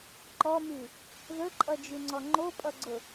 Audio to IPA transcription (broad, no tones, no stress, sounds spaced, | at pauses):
ǃ ɔ m y | ð ɵ ǃʼ ʌ d͡ʒ y ŋ͡ǀ ɔ ŋ͡ǃ o pʼ ʌ ɡ͡ǀ ʊ